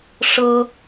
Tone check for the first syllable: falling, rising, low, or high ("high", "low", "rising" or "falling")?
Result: high